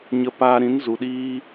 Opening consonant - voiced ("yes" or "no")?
yes